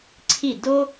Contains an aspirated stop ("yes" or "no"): yes